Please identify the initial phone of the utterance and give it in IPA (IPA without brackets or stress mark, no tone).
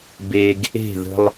b